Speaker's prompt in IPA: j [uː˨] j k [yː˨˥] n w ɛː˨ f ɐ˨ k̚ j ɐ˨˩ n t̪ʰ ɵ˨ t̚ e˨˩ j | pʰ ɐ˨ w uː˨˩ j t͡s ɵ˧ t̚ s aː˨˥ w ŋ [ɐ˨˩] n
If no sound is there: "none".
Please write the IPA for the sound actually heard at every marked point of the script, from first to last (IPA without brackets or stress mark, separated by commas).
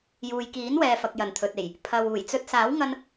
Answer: uː˨, iː˨˥, ɐ˧